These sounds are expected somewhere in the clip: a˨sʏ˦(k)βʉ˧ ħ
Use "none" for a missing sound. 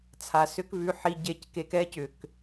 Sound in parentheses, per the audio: k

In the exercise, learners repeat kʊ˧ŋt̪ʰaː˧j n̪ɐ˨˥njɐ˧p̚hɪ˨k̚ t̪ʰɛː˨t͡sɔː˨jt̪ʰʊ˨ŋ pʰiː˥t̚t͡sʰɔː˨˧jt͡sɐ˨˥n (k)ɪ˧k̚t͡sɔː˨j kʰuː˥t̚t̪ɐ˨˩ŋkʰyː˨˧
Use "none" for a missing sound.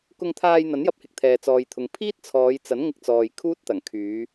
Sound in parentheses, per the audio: ŋ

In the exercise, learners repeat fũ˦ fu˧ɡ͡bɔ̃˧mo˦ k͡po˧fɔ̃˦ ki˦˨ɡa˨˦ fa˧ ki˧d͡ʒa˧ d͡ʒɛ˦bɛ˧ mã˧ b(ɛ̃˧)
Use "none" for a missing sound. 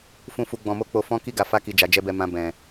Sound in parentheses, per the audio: ɛ̃˧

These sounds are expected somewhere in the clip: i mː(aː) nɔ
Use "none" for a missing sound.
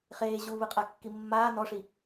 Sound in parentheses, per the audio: aː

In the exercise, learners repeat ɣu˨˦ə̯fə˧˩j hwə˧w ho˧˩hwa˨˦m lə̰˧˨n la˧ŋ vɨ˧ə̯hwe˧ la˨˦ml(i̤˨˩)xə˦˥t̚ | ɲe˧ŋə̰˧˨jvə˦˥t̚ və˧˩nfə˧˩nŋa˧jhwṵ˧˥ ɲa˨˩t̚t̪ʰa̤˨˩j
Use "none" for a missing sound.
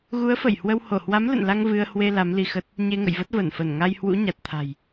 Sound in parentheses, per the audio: i˧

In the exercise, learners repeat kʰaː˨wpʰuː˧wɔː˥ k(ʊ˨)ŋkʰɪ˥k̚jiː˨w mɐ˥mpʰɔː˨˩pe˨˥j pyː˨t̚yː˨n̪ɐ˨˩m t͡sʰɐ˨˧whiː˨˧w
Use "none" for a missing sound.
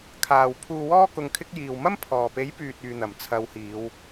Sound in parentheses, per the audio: ʊ˧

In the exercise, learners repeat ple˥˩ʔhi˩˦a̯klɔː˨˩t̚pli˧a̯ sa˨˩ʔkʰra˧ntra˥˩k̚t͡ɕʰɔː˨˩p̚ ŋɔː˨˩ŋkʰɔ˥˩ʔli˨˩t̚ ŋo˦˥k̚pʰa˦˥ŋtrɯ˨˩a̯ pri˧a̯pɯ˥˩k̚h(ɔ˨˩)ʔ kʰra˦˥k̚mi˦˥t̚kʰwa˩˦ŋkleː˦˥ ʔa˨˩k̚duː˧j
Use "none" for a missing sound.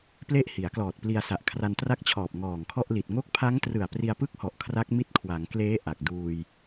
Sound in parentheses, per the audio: ɔ˨˩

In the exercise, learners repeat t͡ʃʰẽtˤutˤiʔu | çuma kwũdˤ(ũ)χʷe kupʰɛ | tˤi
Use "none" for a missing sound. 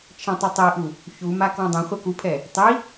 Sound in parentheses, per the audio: ũ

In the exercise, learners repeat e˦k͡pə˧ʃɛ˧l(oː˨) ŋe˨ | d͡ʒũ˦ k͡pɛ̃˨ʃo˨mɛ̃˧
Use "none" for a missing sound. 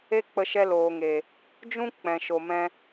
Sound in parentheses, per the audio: oː˨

